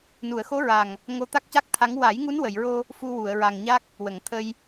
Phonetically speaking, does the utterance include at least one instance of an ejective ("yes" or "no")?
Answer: no